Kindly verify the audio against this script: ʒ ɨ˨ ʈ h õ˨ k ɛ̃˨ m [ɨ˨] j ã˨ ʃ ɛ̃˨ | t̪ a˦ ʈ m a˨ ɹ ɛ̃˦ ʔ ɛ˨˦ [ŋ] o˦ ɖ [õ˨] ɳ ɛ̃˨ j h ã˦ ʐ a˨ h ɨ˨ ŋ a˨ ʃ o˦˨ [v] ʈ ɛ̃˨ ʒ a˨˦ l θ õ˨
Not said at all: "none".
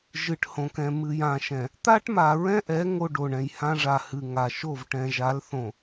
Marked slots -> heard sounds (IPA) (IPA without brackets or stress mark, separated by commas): ɨ˨, ŋ, o˨, v